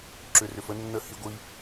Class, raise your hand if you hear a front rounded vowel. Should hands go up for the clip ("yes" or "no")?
yes